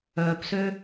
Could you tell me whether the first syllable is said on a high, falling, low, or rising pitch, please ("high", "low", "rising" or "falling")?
low